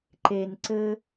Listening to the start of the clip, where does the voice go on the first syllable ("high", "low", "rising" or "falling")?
low